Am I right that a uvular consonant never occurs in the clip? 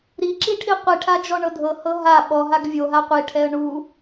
no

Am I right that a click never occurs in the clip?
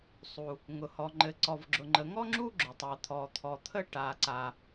no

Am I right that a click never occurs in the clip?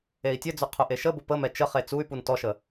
yes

